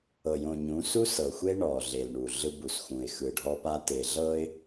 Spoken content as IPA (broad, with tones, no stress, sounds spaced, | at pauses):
ɤ˨ j õ˨ ɲ ũ˨˦ s u˦ s ɤ˨ xʷ e˦ ɳ ɔ˨ ɮ e˨ l ɳ u˨ ɮ ɯ˦ b u˨ s x ũ˨ ɪ̯ x ɯ˨ ɖʱ ɔ˦ p a˦ t e˨ ɮ ɤ˦ ɪ̯